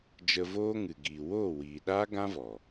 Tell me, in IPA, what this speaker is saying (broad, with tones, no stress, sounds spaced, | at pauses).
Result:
d͡ʒ ə˧ v oː˦ ŋ ɨ˨ ɡ iː˨ w oː˦˨ w iː˨ ɗ aː˦ ɡ ã˦ v ɔ˨